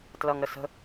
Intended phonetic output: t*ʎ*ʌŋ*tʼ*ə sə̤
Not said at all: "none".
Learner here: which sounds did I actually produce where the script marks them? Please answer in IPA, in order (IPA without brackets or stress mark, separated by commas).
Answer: l, ɾ